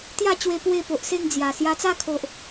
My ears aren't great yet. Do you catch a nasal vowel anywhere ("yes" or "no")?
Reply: no